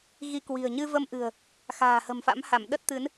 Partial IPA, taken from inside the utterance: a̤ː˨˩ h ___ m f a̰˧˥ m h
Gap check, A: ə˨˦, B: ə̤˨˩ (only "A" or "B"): B